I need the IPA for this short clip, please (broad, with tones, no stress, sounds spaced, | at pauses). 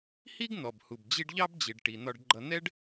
h i˥ ɡ n̪ ɔ˩ b h u˩ b d͡ʑ i˦ ɖ ʎ ɑ˥ b d͡ʑ i˩ ɖ ʈ i˩ n̪ ɒ˨ ɖ ɡ͡ǃ ʌ˨ n̪ ɛ˥ ɖ